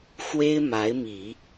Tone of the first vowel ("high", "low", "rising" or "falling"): high